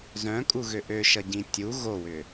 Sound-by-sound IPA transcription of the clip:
z œ̃ kʼ u ɣ ø ʔ ø ʃ ʌ ɟ ĩ tʲ u ɣ o w ʏ

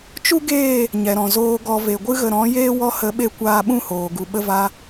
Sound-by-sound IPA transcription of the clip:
t͡ʃ u˦ ɡ eː˦˨ | ɲ ɛ˨ ɾ ɔ̃˨ z oː˨ ɡ ɔ˨ v e˨ ɡʷ ɨ˧ ɣ ə˨ ɾ ɔ̃˨˦ j eː˦ w ɔ˧ h ə˨˦ ɓ e˧ kʷ aː˧ ɓ ũ˦˨ h oː˨ ɡ u˨ ɓ ə˦ v a˦

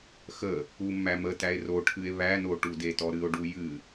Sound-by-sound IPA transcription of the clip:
x ə | u mː æ m ə t æ e̯ r o ʈʰ ɨ e̯ β æ n o ʈ u d e t ɔ ɾ ɨ o̯ ɖ u j ɨ

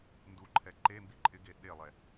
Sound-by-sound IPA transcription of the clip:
n d u ǃʰ ɛ ǃ e m b i ǃʼ ɪ ɡ e ɗ e lˠ ɛ

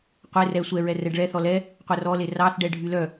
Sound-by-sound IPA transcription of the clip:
qʷ e r ɛ sʷ ɛ ɹ ɛ r ɛ ɖ ɭ ɛ θ ɔ l ɛ | qʷ ɛ r ɔ l e r ɑ θ ɖ ɛ ɖʱ y l œ

